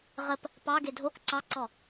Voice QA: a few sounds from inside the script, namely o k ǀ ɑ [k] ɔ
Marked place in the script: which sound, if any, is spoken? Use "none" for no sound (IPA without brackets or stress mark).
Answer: ǀ